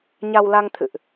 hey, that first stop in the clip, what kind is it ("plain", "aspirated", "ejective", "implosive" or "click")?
aspirated